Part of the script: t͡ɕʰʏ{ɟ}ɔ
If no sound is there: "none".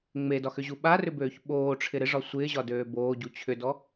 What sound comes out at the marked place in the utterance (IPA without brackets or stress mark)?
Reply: d